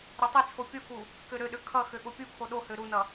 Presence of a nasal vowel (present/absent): absent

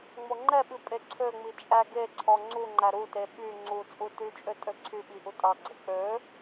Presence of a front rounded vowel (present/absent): present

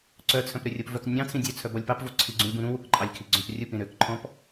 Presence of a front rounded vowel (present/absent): present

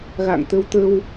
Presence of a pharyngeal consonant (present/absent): absent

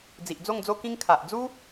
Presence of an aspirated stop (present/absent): present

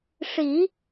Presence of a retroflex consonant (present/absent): present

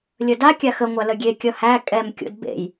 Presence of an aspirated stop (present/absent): absent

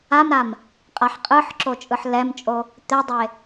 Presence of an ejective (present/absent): present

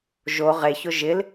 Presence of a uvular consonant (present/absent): present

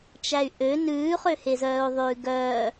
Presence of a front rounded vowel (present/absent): present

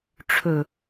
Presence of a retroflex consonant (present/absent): present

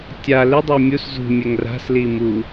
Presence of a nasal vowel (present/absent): absent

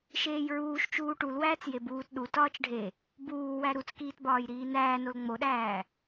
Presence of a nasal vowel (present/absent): absent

